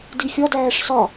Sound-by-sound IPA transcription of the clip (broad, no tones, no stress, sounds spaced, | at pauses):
d i xʲ ɒ d æː ʂ s ɒ